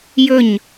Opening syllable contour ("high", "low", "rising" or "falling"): falling